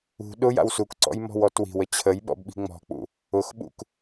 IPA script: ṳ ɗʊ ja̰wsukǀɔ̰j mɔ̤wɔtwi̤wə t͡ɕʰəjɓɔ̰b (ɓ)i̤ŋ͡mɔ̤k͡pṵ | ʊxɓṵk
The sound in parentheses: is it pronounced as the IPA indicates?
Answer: yes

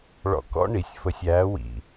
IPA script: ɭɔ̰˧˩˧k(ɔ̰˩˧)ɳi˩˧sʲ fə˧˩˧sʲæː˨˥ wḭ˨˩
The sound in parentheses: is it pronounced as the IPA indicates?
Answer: no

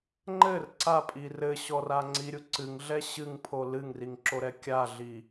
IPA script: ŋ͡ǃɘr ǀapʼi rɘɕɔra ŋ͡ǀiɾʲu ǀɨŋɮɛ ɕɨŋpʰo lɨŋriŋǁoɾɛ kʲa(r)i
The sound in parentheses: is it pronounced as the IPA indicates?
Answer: no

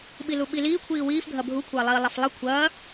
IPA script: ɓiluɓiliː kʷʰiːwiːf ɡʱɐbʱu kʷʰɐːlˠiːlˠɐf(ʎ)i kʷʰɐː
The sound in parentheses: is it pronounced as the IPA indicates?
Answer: no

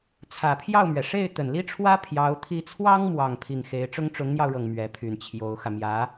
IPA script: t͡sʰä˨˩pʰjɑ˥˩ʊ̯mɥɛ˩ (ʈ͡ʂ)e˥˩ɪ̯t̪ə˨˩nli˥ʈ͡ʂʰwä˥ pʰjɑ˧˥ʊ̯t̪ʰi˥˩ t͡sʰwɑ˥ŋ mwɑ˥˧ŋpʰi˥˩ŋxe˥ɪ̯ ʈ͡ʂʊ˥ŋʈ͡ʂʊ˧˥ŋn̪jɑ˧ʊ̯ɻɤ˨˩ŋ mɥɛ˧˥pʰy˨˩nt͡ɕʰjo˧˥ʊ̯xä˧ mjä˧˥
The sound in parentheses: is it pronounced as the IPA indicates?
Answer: no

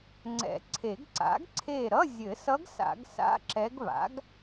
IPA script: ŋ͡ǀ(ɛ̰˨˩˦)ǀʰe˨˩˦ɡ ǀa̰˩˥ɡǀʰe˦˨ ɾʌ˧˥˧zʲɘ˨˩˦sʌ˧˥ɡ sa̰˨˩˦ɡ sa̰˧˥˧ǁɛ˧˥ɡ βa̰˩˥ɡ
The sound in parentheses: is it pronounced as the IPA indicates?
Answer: yes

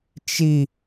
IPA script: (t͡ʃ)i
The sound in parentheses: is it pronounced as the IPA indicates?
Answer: yes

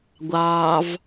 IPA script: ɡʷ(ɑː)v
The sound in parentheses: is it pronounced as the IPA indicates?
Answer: yes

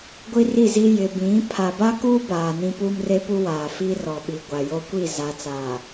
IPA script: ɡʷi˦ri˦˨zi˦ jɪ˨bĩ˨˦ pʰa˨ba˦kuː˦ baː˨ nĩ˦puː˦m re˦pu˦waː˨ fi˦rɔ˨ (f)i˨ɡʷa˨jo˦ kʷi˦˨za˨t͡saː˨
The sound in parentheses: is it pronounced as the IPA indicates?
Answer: no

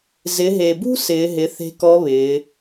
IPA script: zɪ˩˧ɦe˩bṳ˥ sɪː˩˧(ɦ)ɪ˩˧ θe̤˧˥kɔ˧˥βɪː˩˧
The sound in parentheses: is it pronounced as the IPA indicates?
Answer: yes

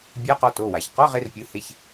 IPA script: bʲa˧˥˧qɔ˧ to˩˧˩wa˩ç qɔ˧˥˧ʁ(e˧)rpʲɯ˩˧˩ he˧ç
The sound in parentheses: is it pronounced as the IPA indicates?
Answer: yes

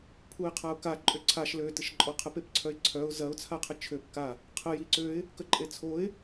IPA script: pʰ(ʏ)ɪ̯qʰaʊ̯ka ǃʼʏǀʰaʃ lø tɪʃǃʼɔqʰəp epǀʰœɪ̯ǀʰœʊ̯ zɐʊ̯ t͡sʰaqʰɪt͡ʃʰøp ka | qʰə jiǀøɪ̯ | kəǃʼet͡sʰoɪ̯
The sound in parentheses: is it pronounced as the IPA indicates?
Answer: no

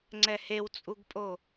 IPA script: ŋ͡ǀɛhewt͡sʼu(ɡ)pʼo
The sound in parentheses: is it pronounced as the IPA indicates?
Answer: yes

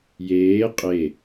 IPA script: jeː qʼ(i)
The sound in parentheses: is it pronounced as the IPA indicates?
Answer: no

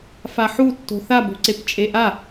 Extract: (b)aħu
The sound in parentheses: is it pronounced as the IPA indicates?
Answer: no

